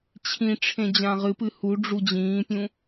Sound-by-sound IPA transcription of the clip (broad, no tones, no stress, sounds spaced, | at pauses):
t͡ɕʰ ĩ ʈ͡ʂʰ ẽ d͡ʑ ã ʁ ɨ p ɨ h u ɖ͡ʐ u d͡ʑ ĩː pʲ ũ